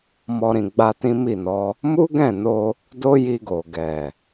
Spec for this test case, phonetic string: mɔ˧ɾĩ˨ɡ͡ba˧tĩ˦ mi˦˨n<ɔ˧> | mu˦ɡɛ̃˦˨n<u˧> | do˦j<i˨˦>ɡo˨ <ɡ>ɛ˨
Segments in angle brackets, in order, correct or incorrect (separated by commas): incorrect, incorrect, incorrect, correct